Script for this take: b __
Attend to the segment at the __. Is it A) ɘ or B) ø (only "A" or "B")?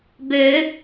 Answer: B